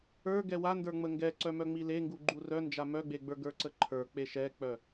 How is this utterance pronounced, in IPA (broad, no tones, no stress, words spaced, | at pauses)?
ə˞ ɡɛwandə˞ŋ͡mə ŋɡɛ ǀœmœŋ͡mile ŋɡuɡ͡ǃurœnd͡ʒa mœɡ͡beɡ͡bə˞ ɡə˞ǀəǃʰə˞ k͡peʃɛk͡pœ